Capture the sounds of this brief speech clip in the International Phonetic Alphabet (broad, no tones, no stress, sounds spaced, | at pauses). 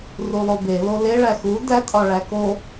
r u lˠ o b e l o l e ɭ æ x u d æ tʼ ɒ ɭ æ k o